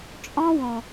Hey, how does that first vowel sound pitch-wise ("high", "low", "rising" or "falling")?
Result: high